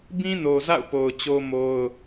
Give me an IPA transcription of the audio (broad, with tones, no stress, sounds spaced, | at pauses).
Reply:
b ĩ˦ n o˨ z a̰˦˨ ʊ̯ p o˨ ʊ̯ t͡ɕ o˦ m o˦ ʊ̯